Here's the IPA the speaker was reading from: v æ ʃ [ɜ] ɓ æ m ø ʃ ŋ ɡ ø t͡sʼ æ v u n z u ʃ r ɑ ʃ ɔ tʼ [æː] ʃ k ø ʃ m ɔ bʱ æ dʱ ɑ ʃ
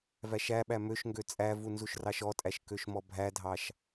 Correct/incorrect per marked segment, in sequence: incorrect, incorrect

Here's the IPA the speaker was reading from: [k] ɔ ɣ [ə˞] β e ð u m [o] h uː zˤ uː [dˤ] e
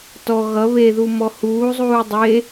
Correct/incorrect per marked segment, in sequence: incorrect, incorrect, incorrect, correct

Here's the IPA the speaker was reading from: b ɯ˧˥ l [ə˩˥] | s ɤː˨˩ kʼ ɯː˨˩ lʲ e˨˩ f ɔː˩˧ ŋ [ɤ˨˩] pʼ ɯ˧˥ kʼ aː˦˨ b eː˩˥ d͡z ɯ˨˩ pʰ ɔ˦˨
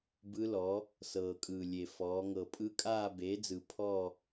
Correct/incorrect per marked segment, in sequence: incorrect, correct

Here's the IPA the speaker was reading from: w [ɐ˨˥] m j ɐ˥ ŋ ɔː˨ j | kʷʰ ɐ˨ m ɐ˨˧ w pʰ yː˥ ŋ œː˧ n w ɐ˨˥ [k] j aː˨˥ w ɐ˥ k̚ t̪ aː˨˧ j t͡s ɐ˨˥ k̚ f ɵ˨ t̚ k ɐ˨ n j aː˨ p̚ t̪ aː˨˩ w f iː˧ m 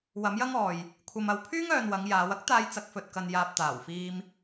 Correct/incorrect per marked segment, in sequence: correct, incorrect

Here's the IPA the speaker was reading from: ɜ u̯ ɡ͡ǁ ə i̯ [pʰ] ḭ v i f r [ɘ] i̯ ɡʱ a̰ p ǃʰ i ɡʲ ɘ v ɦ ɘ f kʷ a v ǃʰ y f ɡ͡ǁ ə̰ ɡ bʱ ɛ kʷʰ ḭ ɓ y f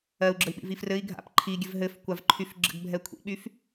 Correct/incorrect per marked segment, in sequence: incorrect, correct

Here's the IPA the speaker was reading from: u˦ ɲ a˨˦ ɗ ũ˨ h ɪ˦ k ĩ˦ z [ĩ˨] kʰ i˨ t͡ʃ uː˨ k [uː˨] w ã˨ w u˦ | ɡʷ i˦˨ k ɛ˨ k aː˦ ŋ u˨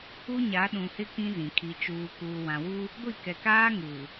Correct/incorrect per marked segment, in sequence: correct, correct

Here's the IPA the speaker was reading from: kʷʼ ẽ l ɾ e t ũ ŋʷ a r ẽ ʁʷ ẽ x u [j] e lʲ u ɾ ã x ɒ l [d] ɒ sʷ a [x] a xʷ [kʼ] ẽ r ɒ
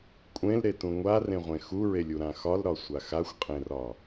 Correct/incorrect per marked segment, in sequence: incorrect, incorrect, correct, incorrect

